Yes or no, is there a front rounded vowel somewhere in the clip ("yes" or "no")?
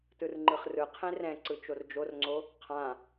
no